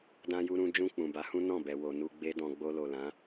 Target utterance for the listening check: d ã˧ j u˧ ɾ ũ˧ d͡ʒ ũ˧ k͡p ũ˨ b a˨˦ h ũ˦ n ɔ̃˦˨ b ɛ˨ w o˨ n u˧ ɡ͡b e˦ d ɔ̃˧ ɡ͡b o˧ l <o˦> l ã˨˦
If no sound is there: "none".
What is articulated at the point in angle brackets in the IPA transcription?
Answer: o˨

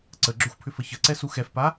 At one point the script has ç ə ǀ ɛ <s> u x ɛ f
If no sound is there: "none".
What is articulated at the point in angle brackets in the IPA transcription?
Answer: s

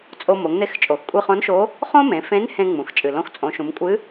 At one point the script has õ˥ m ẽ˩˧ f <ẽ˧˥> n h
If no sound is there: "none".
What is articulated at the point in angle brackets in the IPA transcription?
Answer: ẽ˧˥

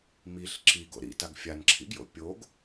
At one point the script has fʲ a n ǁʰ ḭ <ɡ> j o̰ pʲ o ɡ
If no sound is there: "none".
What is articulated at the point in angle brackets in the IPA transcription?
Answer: ɡ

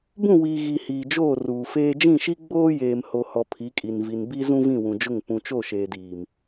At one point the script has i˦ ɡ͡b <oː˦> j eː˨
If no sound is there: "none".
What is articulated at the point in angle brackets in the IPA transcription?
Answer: oː˦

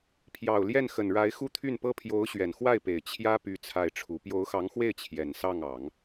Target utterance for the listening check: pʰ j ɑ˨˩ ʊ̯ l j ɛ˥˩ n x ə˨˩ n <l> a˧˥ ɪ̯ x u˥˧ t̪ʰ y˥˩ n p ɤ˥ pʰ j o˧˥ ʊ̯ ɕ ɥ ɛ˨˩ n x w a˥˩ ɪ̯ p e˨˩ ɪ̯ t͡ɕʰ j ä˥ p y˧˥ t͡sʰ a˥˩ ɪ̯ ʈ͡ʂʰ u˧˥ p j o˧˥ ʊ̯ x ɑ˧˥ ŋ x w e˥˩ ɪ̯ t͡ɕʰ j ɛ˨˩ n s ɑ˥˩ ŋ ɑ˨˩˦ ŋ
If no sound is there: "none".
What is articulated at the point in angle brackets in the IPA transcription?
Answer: ɻ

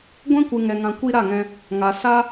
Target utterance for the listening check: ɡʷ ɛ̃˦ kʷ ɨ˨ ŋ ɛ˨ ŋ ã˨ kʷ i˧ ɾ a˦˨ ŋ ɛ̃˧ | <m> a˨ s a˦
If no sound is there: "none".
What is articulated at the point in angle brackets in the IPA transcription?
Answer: ŋ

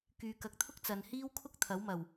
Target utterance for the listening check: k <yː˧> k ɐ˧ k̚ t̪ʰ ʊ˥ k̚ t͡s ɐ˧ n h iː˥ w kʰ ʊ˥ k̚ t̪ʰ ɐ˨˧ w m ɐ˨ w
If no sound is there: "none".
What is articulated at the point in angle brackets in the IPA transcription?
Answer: yː˧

